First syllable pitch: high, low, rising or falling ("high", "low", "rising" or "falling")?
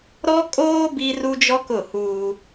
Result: high